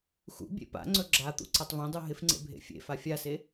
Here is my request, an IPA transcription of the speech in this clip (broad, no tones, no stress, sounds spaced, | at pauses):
x ṵ bʲ ḛ p a̰ ŋ͡ǀ ɵ ɡ͡ǁ a t̪ ṵ ǀ a tˤ v ẽ dˤ u ɦ ɪ f ŋ͡ǀ ḛ bʱ ḛ fʲ ḛ f a fʲ a s e